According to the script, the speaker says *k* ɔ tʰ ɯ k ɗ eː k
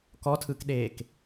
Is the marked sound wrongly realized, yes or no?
no